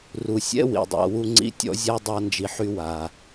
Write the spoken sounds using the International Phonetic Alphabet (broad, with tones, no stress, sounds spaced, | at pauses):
r u˩ sʲ ɛ̰˥ w ḭ˩ dˤ a̰˨ w u˦ ŋ͡ǀ ḭ˦ tʲ ɔ̰˥ zʲ a˥ dˤ a˦ n d͡ʒ i˨ ħ y˦ w a˩